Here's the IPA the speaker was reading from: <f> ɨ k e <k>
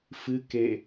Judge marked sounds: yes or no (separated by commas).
yes, no